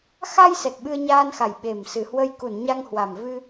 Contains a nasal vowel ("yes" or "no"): no